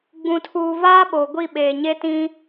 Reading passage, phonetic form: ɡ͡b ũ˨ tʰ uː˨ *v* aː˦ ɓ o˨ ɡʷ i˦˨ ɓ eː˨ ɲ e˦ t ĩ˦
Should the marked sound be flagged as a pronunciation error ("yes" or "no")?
no